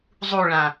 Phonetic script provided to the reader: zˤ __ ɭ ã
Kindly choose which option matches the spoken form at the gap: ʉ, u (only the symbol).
u